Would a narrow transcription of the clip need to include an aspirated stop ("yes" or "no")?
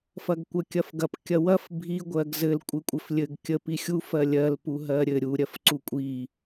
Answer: no